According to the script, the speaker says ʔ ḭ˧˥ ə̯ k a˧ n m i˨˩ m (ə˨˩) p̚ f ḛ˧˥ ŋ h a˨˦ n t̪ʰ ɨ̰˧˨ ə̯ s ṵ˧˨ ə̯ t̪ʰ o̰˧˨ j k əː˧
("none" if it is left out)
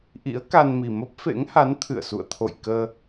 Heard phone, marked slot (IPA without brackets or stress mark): ə˦˥